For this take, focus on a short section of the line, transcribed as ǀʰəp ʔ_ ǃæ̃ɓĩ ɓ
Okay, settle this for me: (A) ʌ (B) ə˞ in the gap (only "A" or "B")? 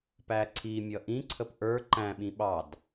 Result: B